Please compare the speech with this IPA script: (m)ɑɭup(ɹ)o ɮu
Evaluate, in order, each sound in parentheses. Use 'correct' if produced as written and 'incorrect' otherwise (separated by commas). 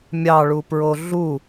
incorrect, correct